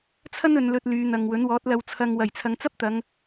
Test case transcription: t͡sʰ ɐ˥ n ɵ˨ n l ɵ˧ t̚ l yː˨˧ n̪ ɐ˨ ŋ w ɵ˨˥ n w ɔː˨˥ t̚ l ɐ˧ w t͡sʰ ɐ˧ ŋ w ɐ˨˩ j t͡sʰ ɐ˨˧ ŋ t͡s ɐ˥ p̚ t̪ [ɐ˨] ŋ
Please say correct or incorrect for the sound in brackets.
incorrect